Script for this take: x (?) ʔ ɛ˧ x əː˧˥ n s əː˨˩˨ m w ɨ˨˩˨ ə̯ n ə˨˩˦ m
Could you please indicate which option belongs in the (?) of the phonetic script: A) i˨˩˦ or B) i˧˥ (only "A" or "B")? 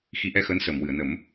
B